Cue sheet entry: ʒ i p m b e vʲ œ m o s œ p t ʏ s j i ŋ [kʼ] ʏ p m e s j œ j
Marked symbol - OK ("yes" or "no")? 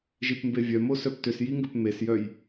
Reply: no